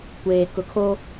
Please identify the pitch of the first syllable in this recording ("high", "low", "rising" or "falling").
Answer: low